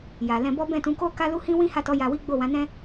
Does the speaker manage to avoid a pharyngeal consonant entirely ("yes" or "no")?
yes